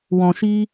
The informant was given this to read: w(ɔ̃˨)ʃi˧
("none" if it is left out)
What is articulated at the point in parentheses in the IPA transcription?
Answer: ɔ̃˨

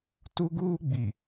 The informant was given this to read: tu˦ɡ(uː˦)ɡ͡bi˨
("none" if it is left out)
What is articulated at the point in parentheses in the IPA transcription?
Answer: uː˦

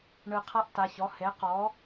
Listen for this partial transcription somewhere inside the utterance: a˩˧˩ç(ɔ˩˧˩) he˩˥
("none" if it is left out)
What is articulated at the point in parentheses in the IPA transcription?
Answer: ɔ˩˧˩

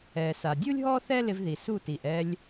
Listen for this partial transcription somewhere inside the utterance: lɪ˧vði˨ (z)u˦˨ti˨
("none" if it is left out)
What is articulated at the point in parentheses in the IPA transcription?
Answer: s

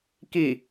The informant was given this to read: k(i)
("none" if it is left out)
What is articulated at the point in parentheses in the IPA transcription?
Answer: i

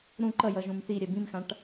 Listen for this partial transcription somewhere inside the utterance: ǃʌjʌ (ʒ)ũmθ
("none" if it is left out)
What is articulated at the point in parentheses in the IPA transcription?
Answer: ʒ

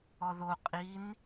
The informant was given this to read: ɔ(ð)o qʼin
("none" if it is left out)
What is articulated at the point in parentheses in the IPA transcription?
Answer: ð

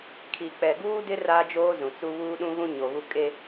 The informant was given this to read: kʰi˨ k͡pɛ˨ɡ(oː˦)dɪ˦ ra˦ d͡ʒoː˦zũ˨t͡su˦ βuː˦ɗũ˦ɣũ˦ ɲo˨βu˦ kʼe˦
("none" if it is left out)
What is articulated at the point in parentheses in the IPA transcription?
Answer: uː˦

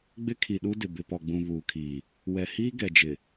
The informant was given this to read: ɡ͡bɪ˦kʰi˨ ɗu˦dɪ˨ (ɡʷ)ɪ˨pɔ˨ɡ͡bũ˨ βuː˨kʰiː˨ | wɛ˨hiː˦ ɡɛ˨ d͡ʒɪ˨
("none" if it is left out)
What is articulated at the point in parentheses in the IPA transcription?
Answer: b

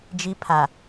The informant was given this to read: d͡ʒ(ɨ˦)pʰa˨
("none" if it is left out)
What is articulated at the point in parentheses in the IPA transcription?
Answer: i˦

